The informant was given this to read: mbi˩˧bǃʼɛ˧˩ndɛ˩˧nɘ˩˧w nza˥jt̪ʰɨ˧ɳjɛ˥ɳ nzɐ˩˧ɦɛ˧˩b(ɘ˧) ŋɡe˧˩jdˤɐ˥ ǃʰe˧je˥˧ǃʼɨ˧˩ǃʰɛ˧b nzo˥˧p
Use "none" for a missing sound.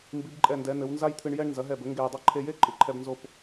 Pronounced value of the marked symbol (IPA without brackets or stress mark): ɘ˩˧